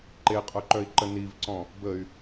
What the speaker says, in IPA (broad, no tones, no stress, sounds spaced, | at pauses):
ǃ e qʼ œ ǃ œ i̯ ǃ ə n i v ǀ ɔ̃ | b ə y̯